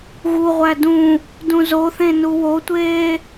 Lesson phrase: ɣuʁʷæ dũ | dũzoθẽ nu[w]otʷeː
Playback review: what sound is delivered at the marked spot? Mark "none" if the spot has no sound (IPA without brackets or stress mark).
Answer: w